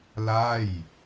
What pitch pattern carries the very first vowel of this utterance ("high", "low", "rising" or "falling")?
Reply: falling